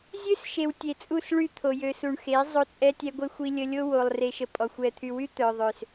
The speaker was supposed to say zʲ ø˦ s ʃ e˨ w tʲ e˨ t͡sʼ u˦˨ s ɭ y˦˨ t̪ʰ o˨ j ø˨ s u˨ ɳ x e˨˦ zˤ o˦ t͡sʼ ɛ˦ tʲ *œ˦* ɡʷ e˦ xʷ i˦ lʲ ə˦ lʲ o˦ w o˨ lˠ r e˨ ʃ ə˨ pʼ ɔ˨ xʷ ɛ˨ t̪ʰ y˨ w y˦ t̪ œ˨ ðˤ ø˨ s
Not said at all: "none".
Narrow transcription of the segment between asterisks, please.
ɛ˦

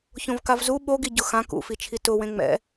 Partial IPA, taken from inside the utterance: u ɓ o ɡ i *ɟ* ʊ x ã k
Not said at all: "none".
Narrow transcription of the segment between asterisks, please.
ɟ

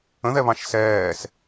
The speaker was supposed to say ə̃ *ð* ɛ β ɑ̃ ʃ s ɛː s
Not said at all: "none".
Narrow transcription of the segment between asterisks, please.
ð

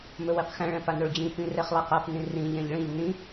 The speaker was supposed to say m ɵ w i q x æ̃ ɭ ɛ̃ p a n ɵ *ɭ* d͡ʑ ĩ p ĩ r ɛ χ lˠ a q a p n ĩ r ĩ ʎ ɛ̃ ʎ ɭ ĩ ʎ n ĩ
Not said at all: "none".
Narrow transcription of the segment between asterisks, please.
ɭ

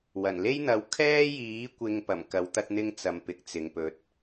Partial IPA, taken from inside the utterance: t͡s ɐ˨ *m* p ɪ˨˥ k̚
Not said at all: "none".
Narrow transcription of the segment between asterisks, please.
m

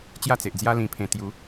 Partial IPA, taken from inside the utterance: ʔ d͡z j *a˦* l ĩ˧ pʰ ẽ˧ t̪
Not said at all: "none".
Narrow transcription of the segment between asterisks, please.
a˦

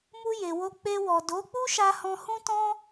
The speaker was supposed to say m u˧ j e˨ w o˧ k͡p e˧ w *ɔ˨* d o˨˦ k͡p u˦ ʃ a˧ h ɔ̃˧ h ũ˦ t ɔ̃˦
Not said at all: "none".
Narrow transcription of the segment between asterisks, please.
ɔ˨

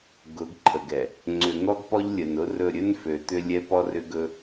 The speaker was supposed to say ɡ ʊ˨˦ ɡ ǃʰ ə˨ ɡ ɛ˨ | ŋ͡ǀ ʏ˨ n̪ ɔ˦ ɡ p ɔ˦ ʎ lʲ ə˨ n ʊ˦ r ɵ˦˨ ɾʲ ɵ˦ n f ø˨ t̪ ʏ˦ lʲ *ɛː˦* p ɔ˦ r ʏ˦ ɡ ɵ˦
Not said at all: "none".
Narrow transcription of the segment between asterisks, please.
ɛ˦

